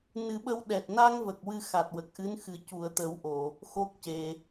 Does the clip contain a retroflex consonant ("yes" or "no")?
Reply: no